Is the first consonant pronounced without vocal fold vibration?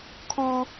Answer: yes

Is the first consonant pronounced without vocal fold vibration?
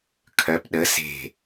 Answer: yes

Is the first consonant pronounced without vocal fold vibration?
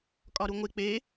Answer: yes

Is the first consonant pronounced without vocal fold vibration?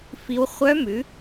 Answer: yes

